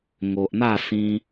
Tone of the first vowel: low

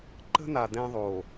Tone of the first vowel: high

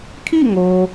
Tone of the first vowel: falling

